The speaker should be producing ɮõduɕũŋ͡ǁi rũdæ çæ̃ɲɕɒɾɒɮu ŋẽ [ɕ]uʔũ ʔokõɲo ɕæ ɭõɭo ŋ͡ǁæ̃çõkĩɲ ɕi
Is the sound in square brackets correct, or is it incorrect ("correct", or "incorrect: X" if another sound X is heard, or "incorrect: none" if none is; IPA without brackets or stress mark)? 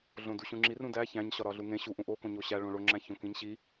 correct